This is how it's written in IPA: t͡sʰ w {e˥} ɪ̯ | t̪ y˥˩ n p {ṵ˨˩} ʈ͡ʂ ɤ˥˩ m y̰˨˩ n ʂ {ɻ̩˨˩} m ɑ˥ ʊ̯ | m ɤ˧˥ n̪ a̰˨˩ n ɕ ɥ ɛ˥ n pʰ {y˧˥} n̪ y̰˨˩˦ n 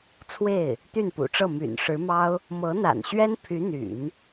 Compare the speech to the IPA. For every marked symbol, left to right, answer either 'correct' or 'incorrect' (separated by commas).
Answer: incorrect, correct, incorrect, correct